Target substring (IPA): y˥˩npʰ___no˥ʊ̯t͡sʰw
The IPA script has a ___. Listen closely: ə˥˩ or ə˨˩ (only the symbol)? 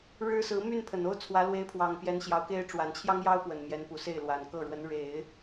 ə˨˩